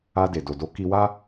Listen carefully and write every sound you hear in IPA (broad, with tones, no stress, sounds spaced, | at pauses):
a˧ d e˨ d o˨ d o˨˦ k i˧ w a˦